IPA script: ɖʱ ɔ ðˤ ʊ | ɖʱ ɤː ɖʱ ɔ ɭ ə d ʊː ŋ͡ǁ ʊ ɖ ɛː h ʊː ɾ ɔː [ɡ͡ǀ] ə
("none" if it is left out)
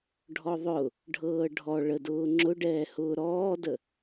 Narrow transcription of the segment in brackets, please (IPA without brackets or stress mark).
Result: d